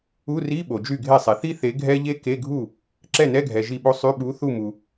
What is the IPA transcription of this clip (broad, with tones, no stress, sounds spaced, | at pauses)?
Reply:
u˧˥˧ r i˧˥˧ ɓ o˨ d͡ʒ y˥˩ ɡʱ e˥˩ sˤ e˨ θ i˥ θ e˨˥ ɡʱ ɛ˥ ʎ e˥ k e˧˥˧ ɡʱ u˥˩ | ǁ ɛ˥˩ n ɛ˧˥˧ ɡʱ ɛ˨ ʒ i˥˩ ɓ o˥ sˤ y˧˥˧ ɓ u˨˥ θ u˥˩ m u˨